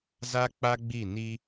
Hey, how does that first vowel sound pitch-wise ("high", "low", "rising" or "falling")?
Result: high